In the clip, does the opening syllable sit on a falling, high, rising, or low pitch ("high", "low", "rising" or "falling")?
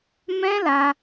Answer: high